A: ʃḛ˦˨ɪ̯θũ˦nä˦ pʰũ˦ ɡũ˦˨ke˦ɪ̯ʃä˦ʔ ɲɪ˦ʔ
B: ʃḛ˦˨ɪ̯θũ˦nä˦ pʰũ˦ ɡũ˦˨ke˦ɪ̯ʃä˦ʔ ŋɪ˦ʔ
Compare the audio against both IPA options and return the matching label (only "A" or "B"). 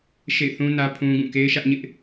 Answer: A